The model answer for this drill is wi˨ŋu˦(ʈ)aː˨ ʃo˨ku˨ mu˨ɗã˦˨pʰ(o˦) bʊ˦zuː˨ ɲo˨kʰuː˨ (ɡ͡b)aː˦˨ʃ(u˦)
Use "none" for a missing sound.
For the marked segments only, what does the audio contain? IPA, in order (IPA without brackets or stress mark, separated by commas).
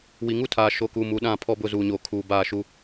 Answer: tʰ, ɔ˦, b, u˦